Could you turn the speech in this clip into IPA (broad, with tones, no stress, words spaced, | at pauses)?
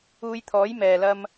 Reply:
uː˧jt̪ʰɔː˨˥j mɛː˨lɐ˥m